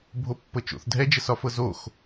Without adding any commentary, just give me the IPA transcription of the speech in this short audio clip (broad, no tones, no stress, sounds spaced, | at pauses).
bʱ o pː ɤ t͡ʃ o̰ θ dʱ ɛ d͡ʒ ə s ɒ f ɤ z o x